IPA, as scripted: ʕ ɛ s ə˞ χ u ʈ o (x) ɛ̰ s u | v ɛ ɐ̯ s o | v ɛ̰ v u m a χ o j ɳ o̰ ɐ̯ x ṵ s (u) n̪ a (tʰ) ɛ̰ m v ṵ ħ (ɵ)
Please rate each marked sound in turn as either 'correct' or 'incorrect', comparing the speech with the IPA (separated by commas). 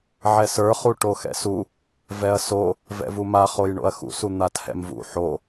correct, correct, correct, incorrect